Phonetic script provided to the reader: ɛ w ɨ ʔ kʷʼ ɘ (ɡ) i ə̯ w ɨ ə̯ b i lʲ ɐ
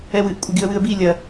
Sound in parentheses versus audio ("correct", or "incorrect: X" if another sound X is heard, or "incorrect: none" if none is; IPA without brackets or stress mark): correct